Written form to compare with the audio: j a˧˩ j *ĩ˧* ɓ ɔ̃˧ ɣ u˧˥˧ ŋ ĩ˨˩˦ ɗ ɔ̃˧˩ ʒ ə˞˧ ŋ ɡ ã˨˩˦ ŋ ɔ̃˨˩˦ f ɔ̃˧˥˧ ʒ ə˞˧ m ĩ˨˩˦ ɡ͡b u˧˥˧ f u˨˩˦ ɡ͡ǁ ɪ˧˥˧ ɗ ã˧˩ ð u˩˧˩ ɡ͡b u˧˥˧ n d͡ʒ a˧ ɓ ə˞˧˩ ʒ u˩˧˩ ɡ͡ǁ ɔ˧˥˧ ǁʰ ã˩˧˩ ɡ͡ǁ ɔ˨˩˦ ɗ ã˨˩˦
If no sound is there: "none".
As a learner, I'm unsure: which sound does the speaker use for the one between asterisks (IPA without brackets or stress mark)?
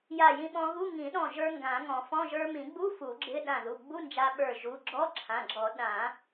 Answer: ĩ˧